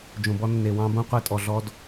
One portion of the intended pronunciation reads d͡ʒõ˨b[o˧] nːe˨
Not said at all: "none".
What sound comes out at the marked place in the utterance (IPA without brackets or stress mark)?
ɔ˧